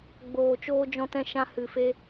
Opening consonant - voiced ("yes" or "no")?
yes